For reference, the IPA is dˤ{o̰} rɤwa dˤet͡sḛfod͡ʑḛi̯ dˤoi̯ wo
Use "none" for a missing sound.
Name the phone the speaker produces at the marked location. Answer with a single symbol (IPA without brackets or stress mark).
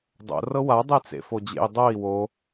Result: o̰